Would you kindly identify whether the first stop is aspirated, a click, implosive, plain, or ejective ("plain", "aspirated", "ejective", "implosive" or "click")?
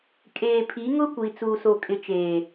ejective